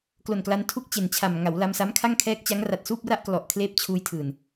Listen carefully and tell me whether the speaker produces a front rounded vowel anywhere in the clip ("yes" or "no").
no